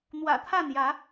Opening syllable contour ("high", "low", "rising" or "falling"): low